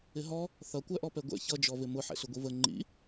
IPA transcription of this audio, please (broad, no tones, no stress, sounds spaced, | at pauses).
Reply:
ɪ ɦ ɔ | θ ʌ kʷ æ ʔ ɔ p ɛ ɡʷ ɛ̰ ç ʌ d͡ʒ ɔ v ɪ m ʊ ħ ɛ̰ ɬ ʊ ɡʷ i v ə ŋ͡ǃ ḭ